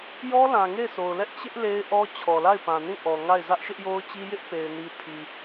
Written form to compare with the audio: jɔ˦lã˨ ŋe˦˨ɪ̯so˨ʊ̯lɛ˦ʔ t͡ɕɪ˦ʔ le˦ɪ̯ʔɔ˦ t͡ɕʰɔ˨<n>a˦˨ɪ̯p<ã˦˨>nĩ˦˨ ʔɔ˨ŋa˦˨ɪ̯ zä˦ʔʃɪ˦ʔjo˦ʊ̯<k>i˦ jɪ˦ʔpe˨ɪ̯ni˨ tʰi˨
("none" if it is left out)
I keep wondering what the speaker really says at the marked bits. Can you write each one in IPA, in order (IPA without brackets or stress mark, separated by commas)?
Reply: l, ã˨, t͡ɕ